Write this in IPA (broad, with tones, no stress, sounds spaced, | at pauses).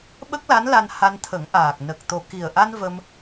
ɓ ə˦˥ k̚ l a˧˥ n l a˧ n h a˧ n t̪ʰ ə˨˩˦ ŋ ʔ aː˨˩ k̚ n ə˨˩ k̚ t̪ o˨˩ k i˨˩ ə̯ ʔ a˧ n v ə˧ m